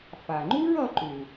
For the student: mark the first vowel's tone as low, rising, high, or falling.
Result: low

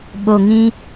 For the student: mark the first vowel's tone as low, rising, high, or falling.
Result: low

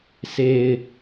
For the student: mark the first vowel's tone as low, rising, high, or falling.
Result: low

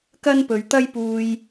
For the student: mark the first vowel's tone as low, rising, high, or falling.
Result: high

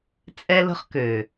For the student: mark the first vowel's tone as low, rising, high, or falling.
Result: high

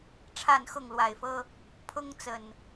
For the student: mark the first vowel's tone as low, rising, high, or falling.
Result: falling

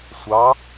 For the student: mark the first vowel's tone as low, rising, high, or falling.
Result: rising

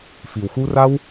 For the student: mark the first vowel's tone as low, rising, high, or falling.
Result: low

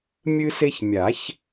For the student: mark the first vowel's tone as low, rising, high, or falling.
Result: high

